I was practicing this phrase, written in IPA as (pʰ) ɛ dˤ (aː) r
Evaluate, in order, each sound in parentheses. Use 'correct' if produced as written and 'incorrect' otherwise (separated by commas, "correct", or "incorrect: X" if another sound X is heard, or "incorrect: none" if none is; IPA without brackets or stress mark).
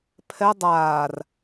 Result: correct, correct